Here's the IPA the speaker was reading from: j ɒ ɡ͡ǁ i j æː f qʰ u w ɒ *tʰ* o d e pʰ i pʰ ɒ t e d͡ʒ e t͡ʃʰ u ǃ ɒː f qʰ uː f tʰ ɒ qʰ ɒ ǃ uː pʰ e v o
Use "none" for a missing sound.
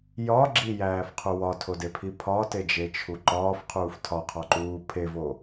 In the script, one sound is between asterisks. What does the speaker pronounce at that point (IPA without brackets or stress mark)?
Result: tʰ